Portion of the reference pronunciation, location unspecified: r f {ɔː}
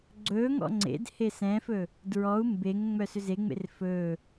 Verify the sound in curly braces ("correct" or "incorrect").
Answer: incorrect